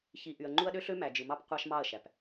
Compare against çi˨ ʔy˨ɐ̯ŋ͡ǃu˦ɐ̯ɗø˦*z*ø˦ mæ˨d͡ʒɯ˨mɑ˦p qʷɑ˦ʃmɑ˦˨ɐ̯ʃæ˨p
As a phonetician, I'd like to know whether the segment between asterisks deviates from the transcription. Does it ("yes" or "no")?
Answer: yes